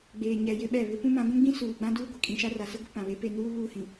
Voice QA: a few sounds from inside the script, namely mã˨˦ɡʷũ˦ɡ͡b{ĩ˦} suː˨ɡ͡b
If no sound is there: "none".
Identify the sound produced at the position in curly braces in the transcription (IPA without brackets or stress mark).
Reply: ĩ˦